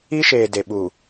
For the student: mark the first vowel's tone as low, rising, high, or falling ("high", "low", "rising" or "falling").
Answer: high